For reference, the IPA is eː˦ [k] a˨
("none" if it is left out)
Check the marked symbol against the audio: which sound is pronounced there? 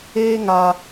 ŋ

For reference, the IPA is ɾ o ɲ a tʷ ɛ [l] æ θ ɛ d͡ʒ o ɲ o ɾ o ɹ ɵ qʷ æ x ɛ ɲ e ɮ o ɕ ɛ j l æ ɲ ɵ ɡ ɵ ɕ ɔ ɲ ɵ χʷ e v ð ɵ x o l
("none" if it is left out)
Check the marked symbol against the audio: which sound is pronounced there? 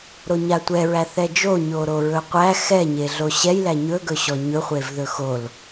ɹ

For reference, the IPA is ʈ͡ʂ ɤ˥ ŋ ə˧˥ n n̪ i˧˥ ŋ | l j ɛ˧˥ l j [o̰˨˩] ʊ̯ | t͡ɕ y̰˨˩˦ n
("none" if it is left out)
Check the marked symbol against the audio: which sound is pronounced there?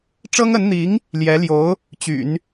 o˧˥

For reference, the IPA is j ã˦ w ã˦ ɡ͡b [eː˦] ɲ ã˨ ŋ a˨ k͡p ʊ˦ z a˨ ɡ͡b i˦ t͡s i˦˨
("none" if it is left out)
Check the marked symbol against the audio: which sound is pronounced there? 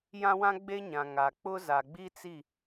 e˦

